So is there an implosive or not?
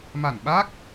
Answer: yes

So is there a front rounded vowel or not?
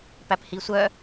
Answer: yes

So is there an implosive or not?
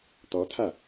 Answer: no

